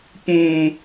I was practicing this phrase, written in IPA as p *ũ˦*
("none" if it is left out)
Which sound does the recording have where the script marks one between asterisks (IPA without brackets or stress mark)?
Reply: ũ˦